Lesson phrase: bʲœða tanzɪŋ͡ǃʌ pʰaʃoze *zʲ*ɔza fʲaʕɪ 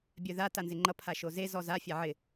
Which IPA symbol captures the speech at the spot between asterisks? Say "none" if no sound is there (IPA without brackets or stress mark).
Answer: z